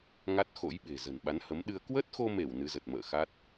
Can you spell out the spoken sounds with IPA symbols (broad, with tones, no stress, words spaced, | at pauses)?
ŋa˦˥t̚xo̰˧˥jɓe̤˨˩ zə̤˨˩nɓa˨˦nhə˨˦mɗɨ˧ə̯ kwə˦˥t̚xo˧me˧˩w nɨ˨˦zə˨˩t̚mə̰ː˧˨xa˦˥t̚